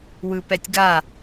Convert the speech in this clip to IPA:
wɯpɛtʲɡa

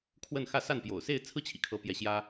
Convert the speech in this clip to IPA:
kʰwə˥˧nxä˥˧ sa˥˩npjo̰˨˩ʊ̯se˥˧ɪ̯ t͡sʰɹ̩˥˩t͡ɕʰḭ˨˩kʰɤ˧˥ pjɛ˧˥ɕjä˥

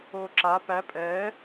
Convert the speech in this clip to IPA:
oːǁa pæ pʼɛː

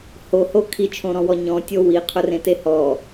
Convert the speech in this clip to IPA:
hoho kʰit͡ʃʰõɾɔ̃wɔ ɲɔ̃tʲo wiqʰʊrẽte hɔ

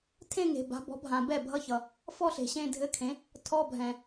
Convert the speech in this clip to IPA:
tʰẽ˥˧ŋe̤˨ ba̤˩˥bɔ̤˩˥bʱã˨ bɛ˥˩bʱʌ˧˥˧ çʌ˨ | fɔ˥˧ɬe̤˨ ɕẽ˥˧dʱɘ˧˥˧kʰẽ˩˥ | tʰɔ˧˥˧bʱɛ̃˨

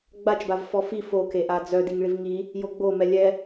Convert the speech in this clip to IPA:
ɡ͡bat͡ʃbavfɔ fi fokeʔa d͡zœdiŋɭiv ŋi | joɡ͡bomɛ lʲɛ

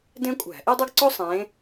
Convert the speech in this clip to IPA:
dẽ˥kʷʼæ̤˧˩˧ʔi˥ dˤø˥ɡǀo˥ sˤẽ˨˦

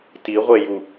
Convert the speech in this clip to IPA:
tiʁʷeju

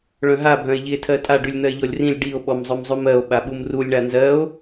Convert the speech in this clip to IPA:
ɭœ̃ɦa bʱœ̃e̯ʎie̯tʰɜtʼa ɖʉlʲn̪ɜe̯ʎɔlʲrĩlʲ ɖio̯ ɓɔmzˤœmzˤʉmɜo̯ ɓaɓumrulʲ ɳanzɜo̯

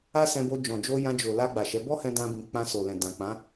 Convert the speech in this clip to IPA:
a˦sɛ̃˧bo˧ d͡ʒɔ̃˨d͡ʒo˧ jã˧d͡ʒo˨ la˧ ɡ͡ba˨ʃɛ˨˦ bɔ˦hɛ̃˧ dã˦bĩ˧ k͡pã˧ so˨lɛ̃˨ dã˨k͡pã˨˦

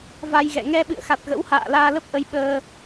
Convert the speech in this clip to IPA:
va˧jɣɛ̰˧˨ ŋɛ˧ɓɨ̰˧˨ə̯ xa˨˩t̚ɣə̰˧˥wha̰ː˧˨ laː˧lə˦˥p̚ʔə˧j ɓəː˧

